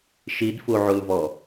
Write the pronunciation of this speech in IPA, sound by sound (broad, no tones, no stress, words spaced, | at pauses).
ʃidfuʕulvɔ